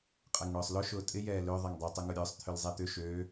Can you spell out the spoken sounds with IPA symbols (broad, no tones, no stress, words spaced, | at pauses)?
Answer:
qʼɛŋɳʊːsˤlʊ ʃʊːtʼɪ jɛːlø ðˤɛŋdˤø tˤʊŋʊɾʲʊːsˤ t̪ʰʏlzˤɛt̪ʏ ʃøː